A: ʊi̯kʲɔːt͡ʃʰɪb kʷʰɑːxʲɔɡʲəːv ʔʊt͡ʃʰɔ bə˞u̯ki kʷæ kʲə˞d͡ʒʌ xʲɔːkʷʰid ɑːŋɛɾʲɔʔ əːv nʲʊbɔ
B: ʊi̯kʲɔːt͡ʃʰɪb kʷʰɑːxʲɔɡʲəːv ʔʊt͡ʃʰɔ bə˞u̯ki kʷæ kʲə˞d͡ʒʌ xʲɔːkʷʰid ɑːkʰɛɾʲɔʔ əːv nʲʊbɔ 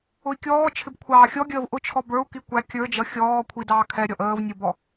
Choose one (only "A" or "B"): B